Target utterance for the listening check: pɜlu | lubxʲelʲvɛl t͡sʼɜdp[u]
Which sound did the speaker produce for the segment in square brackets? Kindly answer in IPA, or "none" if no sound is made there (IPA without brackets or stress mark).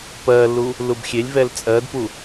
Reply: u